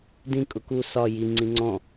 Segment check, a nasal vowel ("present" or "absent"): present